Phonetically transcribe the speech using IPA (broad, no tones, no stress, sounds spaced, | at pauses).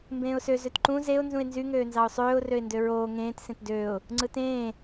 m b ẽː ʊ̯ s ø z ø t ǃ ũ z e ʊ̯ n z ũ ɪ̯ n z y ŋ øː n z ɑ ʊ̯ sˤ øː ʊ̯ r ø ɪ̯ n d ø ɹ oː ŋ ẽː t s ẽ t d øː ʊ̯ | ŋ͡ǀ ɯ t ẽː